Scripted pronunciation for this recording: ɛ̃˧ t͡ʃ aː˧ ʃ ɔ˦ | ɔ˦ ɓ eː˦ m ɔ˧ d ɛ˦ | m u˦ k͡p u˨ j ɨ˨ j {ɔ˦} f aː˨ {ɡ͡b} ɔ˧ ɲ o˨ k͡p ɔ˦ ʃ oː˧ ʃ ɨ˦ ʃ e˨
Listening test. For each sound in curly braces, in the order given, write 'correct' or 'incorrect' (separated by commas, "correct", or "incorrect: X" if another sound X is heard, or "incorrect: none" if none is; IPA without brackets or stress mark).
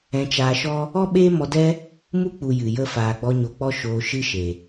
incorrect: ə˦, correct